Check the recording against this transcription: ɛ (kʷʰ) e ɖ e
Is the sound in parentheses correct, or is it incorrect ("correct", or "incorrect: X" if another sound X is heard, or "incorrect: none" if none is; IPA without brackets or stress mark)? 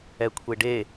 correct